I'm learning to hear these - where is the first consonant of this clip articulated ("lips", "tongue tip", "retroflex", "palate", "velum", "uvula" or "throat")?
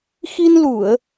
velum